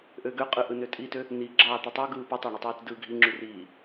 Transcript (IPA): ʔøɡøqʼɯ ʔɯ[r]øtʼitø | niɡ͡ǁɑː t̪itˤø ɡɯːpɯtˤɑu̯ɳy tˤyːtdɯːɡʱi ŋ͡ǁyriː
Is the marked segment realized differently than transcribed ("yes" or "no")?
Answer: yes